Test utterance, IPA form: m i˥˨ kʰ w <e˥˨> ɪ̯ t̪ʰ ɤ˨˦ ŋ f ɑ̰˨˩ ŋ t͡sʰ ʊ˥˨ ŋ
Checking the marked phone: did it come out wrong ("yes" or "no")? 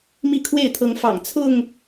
no